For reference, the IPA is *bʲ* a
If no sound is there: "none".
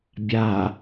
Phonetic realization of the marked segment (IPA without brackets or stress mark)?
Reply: bʲ